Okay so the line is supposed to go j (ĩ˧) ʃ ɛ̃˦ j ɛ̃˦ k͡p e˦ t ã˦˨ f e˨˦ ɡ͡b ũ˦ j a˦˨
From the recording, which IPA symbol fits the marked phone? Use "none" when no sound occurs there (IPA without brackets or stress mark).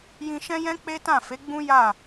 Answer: ĩ˧